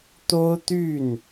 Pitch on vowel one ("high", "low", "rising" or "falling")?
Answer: high